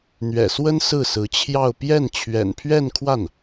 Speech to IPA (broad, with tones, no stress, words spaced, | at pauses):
n̪ɥɛ̰˨˩swə˥n sɹ̩˥˩sɹ̩˧˥t͡ɕʰjɑ˥˧ʊ̯ pjɛ˥˩n t͡ɕʰɥɛ̰˨˩npʰɥɛ˥˧nkʰwa˥˩n